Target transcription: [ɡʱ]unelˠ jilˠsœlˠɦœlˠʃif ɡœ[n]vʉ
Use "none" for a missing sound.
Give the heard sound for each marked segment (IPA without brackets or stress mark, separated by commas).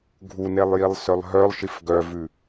ɡʱ, none